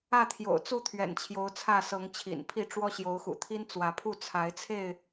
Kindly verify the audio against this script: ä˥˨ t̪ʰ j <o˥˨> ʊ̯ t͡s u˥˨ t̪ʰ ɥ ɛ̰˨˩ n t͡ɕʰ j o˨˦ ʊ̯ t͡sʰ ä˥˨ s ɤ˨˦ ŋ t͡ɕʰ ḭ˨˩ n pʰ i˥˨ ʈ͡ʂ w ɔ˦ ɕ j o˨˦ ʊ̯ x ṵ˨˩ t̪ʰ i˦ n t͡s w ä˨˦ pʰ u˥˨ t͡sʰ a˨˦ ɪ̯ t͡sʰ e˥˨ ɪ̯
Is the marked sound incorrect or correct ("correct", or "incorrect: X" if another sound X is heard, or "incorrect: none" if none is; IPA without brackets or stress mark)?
incorrect: o̰˨˩